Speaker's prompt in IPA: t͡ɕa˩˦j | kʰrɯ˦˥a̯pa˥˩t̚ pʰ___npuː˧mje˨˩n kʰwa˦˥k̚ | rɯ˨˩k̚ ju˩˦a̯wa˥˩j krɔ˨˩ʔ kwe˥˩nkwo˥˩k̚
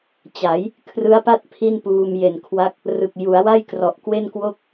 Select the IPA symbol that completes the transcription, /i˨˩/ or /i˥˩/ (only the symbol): i˥˩